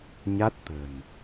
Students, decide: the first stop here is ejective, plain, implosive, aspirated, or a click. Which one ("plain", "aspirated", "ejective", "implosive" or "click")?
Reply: plain